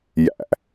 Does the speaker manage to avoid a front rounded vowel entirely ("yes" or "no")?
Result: yes